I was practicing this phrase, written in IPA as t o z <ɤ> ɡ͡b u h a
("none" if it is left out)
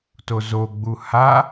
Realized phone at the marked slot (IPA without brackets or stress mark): o